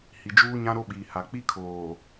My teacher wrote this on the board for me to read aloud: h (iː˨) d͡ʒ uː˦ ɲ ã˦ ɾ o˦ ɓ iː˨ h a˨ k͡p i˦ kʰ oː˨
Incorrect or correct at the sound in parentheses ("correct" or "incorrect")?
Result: incorrect